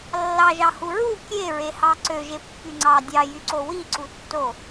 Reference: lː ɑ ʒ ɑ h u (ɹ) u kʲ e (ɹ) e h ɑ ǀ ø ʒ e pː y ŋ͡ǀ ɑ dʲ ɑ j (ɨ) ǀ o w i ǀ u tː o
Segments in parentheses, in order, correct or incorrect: correct, correct, incorrect: y

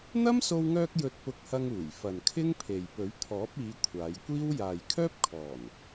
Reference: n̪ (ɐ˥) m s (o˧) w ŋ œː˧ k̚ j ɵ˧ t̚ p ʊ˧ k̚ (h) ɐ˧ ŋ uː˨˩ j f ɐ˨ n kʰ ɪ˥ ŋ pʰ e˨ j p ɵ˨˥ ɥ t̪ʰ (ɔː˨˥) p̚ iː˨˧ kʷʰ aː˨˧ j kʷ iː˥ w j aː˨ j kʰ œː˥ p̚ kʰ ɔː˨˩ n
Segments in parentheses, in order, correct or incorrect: correct, correct, correct, correct

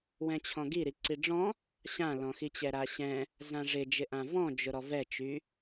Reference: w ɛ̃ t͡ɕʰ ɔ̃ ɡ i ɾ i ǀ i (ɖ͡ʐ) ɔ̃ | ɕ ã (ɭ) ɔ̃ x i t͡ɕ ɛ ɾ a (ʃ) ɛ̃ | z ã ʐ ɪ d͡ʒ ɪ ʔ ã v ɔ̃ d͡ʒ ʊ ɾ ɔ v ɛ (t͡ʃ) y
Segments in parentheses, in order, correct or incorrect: correct, incorrect: l, incorrect: ɕ, correct

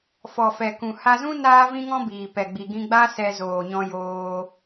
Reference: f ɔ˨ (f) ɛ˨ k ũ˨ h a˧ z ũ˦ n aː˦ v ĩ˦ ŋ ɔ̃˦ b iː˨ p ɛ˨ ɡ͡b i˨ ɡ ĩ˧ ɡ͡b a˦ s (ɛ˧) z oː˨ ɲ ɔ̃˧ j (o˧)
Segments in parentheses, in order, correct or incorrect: correct, correct, incorrect: oː˧

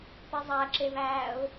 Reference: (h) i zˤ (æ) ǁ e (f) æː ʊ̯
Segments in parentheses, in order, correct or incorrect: incorrect: p, correct, incorrect: v

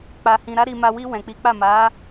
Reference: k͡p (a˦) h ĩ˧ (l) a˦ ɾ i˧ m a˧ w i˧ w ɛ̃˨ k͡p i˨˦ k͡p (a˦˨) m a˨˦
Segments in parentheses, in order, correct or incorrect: incorrect: a˧, incorrect: ɾ, correct

